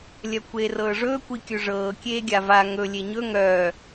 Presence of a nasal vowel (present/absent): absent